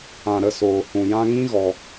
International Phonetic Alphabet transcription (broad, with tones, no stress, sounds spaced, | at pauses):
ã˨ ɾ ə˦˨ s oː˨ h ũ˨ j ã˧ ŋ ĩ˦ ɣ ɔ˧